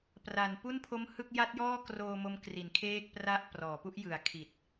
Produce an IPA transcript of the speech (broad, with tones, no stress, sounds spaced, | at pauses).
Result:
p r a˩˦ n p u˥˩ n pʰ o˦˥ m h ɯ˥˩ k̚ j a˦˥ t̚ j ɔː˥˩ k r oː˧ m o˦˥ m k r i˩˦ n kʰ eː˥˩ k̚ p r a˥˩ ʔ p r ɔː˩˦ p u˦˥ ʔ j ɯ˨˩ a̯ kʰ i˨˩ t̚